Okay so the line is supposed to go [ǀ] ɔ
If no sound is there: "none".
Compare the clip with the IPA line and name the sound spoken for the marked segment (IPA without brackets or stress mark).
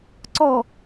ǀ